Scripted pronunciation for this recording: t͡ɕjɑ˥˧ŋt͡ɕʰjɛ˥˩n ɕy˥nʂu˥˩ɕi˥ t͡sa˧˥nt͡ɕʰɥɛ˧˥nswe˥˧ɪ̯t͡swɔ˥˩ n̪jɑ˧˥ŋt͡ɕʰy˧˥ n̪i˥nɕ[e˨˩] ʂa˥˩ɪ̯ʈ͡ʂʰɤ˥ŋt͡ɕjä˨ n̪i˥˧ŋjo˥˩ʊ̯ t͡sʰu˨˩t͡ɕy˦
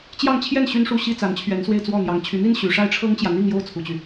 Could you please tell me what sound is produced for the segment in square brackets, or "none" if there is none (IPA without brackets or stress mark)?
y˨˩